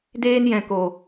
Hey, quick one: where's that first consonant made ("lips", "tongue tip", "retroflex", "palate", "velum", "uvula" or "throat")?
tongue tip